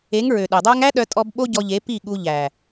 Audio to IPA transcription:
e˨˦ŋɹø˨ɗe˨dˤæ˦ŋ æ˦ɗœ˧tʼɔ˧b ɓo˦ɟɔ˧ʎe˨˦ pi˦˨ɠu˧ ʎæ˨

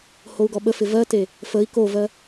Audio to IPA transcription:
hou̯ɡɔɓəfɪ vɜte | fəi̯ kovɜ

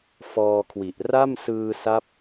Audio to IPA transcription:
fɔː˧kʰwi˨˩ʔ ra˥˩msɯː˧sa˦˥p̚

